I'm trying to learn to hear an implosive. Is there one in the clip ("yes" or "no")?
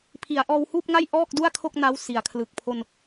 no